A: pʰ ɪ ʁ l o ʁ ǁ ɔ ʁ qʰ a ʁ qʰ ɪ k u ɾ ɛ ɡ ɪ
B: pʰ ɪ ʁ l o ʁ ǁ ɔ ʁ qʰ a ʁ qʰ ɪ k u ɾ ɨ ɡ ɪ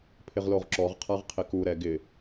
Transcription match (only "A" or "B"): A